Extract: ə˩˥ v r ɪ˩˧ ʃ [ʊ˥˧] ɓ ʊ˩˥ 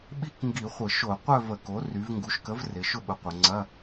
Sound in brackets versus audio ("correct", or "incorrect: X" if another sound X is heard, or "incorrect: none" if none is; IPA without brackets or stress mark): correct